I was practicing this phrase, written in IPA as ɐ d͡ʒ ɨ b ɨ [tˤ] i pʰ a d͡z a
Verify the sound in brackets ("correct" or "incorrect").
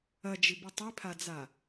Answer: correct